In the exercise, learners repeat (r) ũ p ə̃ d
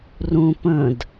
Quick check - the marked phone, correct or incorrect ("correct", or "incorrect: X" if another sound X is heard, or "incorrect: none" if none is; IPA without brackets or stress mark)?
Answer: correct